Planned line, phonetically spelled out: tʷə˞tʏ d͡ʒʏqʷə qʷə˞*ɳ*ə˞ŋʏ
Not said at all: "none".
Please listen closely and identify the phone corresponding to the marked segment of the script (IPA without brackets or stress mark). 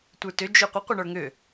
ɳ